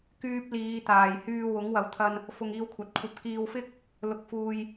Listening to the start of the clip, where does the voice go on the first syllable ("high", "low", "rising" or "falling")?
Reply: high